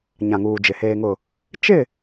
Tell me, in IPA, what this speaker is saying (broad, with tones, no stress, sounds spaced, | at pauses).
ɲ ã˨ ŋ uː˨ d͡ʒ ɪ˨ h eː˨ ŋ ʊ˨ | t͡ʃ ɪ˦˨